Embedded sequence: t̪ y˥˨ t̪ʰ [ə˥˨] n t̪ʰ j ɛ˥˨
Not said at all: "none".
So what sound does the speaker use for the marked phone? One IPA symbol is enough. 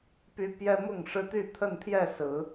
ə˥˨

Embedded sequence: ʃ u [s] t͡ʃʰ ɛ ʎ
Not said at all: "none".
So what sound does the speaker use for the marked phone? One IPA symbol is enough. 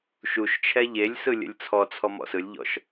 ʃ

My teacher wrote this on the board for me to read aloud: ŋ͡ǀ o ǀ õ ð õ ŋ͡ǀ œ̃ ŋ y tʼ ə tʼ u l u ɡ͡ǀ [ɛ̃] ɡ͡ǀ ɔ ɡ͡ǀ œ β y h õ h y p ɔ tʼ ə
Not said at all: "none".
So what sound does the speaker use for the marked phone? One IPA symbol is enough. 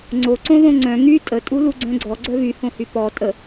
œ̃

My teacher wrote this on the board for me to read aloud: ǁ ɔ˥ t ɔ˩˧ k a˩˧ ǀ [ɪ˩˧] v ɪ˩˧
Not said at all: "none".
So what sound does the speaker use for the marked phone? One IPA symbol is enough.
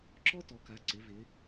ɪ˩˧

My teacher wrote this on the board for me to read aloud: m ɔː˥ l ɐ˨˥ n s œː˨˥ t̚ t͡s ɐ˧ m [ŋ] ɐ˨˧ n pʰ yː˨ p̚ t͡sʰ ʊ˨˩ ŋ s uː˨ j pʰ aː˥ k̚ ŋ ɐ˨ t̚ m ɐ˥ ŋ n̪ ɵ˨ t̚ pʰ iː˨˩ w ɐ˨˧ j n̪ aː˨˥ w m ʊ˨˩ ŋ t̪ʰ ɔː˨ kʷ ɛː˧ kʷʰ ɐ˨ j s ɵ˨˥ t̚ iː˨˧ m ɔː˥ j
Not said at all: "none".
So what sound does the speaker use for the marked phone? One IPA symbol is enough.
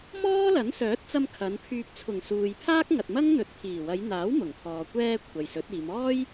kʰ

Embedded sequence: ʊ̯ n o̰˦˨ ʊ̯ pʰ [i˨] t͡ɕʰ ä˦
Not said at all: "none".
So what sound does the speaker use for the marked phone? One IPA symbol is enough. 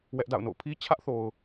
i˦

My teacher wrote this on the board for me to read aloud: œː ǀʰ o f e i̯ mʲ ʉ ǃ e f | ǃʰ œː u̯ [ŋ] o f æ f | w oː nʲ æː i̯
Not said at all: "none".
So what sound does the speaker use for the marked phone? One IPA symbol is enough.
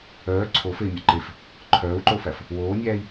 ǃ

